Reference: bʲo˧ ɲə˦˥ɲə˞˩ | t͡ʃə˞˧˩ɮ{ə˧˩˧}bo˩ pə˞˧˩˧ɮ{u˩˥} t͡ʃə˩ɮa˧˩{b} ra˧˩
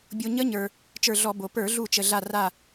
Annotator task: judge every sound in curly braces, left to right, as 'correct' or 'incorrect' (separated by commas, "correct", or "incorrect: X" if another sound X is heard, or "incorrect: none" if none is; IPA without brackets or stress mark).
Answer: incorrect: ɔ˧˩˧, incorrect: u˧˩, incorrect: none